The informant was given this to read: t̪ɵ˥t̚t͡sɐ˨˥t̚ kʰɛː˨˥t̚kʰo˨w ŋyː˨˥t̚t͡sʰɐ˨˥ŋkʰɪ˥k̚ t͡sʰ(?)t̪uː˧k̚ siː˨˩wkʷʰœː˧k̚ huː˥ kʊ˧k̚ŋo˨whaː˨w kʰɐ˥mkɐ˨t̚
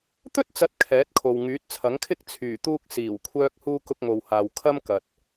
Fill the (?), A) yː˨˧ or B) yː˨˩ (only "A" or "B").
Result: B